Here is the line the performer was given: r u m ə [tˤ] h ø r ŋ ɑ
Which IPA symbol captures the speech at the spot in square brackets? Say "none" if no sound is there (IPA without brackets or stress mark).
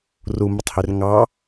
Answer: tˤ